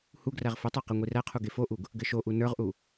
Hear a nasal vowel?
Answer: no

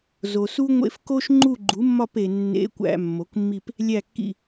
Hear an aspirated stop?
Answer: no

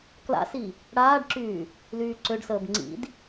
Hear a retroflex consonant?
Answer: yes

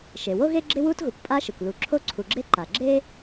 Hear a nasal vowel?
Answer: no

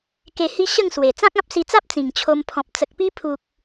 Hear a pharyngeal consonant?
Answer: no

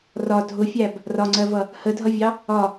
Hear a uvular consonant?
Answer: no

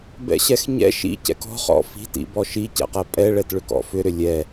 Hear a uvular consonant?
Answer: yes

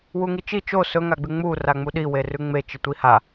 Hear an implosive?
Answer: yes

